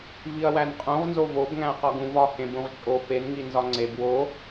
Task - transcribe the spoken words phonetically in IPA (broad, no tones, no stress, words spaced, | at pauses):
viɐ̯wænqʼũʁnzo vob ŋæ̃ɐ̯qɒɡũvɒ hẽbũʁt͡ʃʼo penŋi nzɒŋ͡ǀeb wo